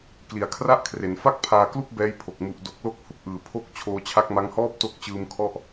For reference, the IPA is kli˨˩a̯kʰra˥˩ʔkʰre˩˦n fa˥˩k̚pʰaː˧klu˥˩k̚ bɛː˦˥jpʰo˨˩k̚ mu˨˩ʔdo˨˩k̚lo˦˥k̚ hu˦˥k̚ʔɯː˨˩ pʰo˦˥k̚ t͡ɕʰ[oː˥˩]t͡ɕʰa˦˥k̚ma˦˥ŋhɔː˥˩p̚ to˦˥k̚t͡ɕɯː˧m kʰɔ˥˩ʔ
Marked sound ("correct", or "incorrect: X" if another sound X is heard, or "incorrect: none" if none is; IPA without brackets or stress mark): incorrect: oː˧